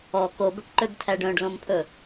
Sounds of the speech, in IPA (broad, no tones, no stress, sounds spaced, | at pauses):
ɔ k o b ɵ ʈ ǃ ø b tʰ æ ɖ œ̃ ɖ l õ m pʰ ɵ